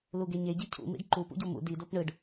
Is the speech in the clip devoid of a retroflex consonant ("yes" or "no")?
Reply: no